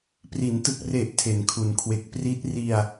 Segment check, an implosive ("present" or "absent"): absent